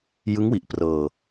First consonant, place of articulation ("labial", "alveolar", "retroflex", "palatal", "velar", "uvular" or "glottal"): palatal